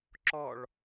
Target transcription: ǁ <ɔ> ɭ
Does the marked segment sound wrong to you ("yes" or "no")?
no